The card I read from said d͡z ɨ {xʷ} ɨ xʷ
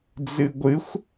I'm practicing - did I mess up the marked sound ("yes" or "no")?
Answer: yes